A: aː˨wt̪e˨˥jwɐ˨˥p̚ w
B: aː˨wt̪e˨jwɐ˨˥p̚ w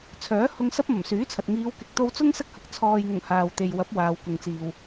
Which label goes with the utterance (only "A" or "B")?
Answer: B